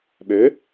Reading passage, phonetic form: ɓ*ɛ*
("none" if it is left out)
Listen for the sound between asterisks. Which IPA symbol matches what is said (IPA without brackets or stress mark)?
ø